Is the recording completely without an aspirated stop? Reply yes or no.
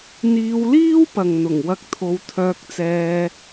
no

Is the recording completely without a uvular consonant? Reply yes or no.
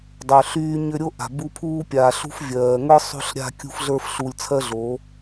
yes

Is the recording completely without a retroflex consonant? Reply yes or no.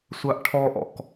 no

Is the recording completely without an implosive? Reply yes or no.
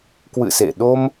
no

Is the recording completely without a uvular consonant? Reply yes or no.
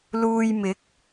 yes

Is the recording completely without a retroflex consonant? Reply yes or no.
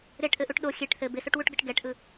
no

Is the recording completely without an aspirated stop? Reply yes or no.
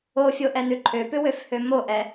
no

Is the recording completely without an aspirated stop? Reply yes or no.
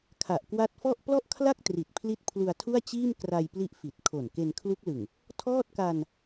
no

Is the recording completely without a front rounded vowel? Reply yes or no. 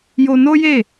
yes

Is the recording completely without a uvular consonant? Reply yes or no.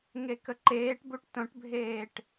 yes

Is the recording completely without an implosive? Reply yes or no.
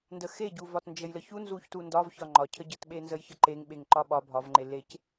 no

